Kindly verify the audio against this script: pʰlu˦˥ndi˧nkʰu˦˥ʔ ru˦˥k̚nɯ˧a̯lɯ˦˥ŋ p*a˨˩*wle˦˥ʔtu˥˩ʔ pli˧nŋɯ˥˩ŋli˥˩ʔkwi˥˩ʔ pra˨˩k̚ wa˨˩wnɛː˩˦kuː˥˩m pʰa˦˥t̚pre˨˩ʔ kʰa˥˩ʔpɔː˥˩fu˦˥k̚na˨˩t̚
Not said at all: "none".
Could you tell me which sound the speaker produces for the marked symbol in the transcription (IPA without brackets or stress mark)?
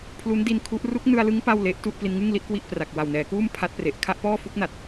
a˥˩